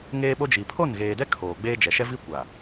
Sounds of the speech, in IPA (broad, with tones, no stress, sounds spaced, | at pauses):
ŋ eː˦ ɓ o˦ d͡ʒ i˨ pʰ o˦˨ n ɣ eː˨ d ɛ˦ kʰ oː˨ ɡ͡b eː˦ d͡ʒ ɛ˨ ʃ ɛ˦ v i˦ kʷ a˨